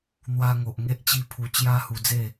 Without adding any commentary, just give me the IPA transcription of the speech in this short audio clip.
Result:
n̪ w a˧ ŋ o˨ ʔ ŋ e˦ ʔ t͡ɕ i˦ pʰ u˧ t͡ɕ j a˦ h u˧ d͡z e˥˧

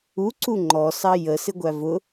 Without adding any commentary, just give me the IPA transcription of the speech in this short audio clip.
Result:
u ǀ u ŋ͡ǃ ɔ s ɑ j ə s ɪ ɡʷ æ v ʊ

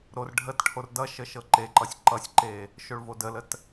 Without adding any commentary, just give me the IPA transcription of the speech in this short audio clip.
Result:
ɾ o r ɖʱ ə t ʈʰ o r d ʌ ʃ ə ʃ ɤ ǃ e ǃ ʌ sʲ ǃ ʌ sʲ ǃ e | ʃ o ɭ v o d ə l ə t

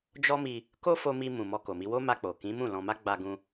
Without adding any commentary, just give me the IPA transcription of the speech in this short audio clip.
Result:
d͡ʒ ɔ˦ m i˧ | k o˦ f o˧ m i˧ m ũ˨ m ɔ˧ k o˨ m i˧ w o˦ m a˧ k͡p o˨ k ĩ˨˦ m ũ˦˨ l ɔ̃˧ m a˦ ɡ͡b a˧ ɡ ũ˧

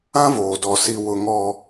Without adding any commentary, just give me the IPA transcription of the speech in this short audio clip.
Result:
ã˦ v oː˨ d ɔ˨ s i˨ w ʊ˨ ŋ ɔ˦

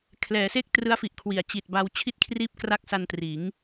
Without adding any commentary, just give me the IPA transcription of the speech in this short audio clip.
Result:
kʰ l ɛː˩˦ s e˥˩ k̚ t r ɯ˦˥ a̯ f i˨˩ ʔ kʰ w i˩˦ a̯ t͡ɕ i˨˩ t̚ b a˧ w t͡ɕʰ i˥˩ t̚ kʰ r iː˥˩ p̚ k r a˥˩ k̚ s a˧ n t r iː˩˦ ŋ

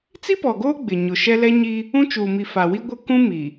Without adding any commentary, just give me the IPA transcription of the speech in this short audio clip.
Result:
t͡s i˦ p ɔ˨ ɡ oː˦ ɡ͡b ɪ˨ ɲ ʊ˨ ʃ ɛ˦ l ɛ˦ ɲ i˦ | ũ˦ t͡ʃ uː˨ m i˨ f a˨ w i˦ ɡʷ ɪ˦ k ũ˦ m i˨

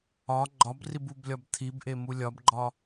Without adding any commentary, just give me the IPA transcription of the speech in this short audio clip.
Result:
ɒ ɡ͡ǃ ɒ b r i b u b lʲ ɒ b t̪ʰ i b ʔ e m u lʲ ɒ b ɡ͡ǃ ɒ

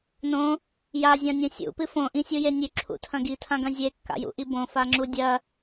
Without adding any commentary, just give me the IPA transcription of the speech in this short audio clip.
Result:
n õ | j a zʲ ã nʲ õ sʲ ṵ p ɨ f õ ʔ ĩ sʲ u j e nʲ ʉ ǁʰ ṵ tʰ ɐ̃ ɡ i tʰ ã ɡ ɐ̃ zʲ e kː a̰ j ṵ ʔ i b õ f a ŋ͡ǁ u dʲ ɐ

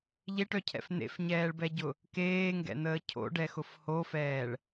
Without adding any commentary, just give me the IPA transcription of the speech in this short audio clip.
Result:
ʎ e ʈ œ cʰ ɛ̰ f n̪ ḛ f ɲ ɛː ɭ b ɛ ɟ ʊ | k eː ŋ ɡ ɛ̰ n̪ əː cʰ o̰ ɖ ɛ x ʊ f h o f ɛː ɭ

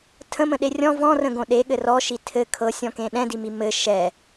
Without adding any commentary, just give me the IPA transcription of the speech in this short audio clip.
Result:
tʰ ə̃ m ə̃ ɗ e rʲ ɔ̃ v ɔ̃ r ə̃ ɡ õ ɗ e ɠ ɘ r ɔ ʃ i tʰ ɘ kʰ ɤ sʲ ɔ̃ k ẽ ɗ ɛ̃ d i m i m ɘ ʃ ɛ

